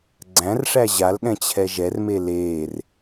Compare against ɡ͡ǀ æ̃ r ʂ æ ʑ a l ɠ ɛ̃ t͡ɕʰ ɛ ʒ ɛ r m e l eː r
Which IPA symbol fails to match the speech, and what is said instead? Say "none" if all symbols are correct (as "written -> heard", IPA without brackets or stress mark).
none